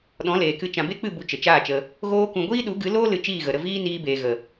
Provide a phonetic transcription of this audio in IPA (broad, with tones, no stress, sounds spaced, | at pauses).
ɗ ɔ̃˨˦ l eː˨ k ɨ˧ t͡ʃ ã˨ b e˦ k͡p ɨ˦˨ b u˧ t͡ʃ ə˨ t͡ʃ aː˦˨ t͡ʃ ə˧ | ɣ oː˦ k ũ˧ ɡʷ iː˦ ɗ u˨˦ ɡ ɨ˨˦ l oː˦ l ɨ˧ t͡ʃ iː˦˨ ɣ ə˨ ɾ ə˧ v iː˦ n iː˧ b eː˨ ɣ ə˨